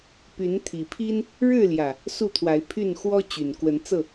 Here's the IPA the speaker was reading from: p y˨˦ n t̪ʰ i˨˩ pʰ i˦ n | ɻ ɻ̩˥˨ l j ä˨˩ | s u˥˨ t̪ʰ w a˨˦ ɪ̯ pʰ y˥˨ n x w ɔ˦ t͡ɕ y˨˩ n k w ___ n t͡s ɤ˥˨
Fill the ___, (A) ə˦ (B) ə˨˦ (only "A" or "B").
B